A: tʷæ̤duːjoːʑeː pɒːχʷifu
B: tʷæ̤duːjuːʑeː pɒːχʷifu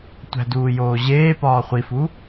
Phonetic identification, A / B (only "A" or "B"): A